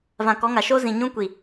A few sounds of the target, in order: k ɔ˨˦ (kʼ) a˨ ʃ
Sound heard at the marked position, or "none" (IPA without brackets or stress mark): ŋ